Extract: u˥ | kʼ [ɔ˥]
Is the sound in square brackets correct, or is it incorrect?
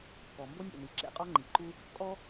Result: correct